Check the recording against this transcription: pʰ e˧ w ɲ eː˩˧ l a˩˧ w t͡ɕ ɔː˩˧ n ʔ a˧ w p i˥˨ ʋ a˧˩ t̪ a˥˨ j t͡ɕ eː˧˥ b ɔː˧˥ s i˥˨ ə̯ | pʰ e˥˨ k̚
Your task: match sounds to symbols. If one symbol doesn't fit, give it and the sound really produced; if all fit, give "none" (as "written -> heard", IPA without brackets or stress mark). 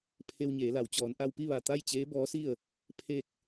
none